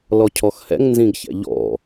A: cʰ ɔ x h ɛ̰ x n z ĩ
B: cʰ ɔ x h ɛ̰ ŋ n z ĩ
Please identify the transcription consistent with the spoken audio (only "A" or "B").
B